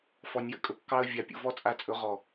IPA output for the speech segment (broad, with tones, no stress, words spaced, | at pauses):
fɔ˨nʲjə̰˧kʼɵ˦ kːɑ˧ə̯ vʲa˨pʲṵ˨vɔ˦ t͡sʼa˧t͡sʼɵ˨˦ ʁɔ˨